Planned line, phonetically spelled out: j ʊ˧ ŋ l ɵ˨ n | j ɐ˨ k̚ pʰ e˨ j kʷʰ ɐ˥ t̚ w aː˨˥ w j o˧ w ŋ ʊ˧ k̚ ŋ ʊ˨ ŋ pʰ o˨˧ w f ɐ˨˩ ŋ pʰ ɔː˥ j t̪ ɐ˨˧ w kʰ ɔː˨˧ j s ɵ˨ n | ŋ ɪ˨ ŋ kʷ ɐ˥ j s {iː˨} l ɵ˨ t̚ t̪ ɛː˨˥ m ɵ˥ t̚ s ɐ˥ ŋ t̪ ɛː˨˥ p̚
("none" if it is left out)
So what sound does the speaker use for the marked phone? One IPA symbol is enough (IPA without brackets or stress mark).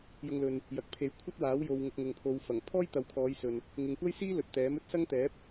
iː˥